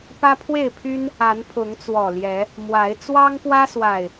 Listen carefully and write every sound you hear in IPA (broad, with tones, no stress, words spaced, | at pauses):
pä˦pʰwe˥˨ɪ̯pʰy˦n | a˨˦npʰʊ˨˦ŋt͡swɔ˨˩ ljɛ˨˦ | mwa˨˦ɪ̯ t͡swɑ˦ŋpwä˦swa˨˩ɪ̯